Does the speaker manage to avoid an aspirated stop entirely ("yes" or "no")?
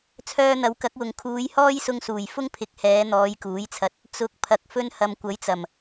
no